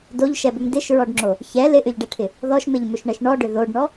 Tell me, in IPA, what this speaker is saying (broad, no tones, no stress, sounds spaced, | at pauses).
d o ʎ ʃ ɛ b ʏ m d ɪ ʃ ɹ ɔ ɖ ŋ͡ǁ o | ç ɛ l ɪ ʔ ʏ ʎ ɖ ɛ ʈʰ ɪ | ð ɔ ʃ m ɪ ʎ m ʏ ʃ ɳ ɛ ʃ ɳ ɔ ɖ ʏ ð o ɖ ɳ ɔ